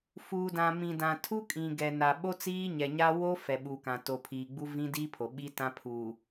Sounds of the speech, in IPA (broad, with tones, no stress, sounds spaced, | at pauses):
f uː˨ d ã˨ m ĩ˨ d ã˨ tʰ u˦ kʼ ĩ˨ ɡ ɛ˨ n a˨ ɓ o˦ t͡s iː˦ ɲ ɛ˨ ɲ a˦ w o˦ f ɛ˨ ɓ uː˨ k ã˨ t o˨ pʰ iː˨ ɡ͡b u˦ v ĩ˦ d iː˦ pʰ o˨ ɓ i˦ t ã˦ pʰ uː˨